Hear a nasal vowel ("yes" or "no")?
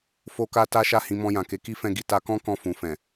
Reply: yes